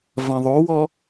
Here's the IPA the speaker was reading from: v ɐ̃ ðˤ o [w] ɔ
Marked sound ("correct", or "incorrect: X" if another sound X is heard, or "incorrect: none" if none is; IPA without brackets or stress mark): correct